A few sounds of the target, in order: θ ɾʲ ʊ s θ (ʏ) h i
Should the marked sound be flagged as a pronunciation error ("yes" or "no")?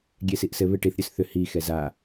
no